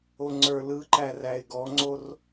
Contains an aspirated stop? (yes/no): no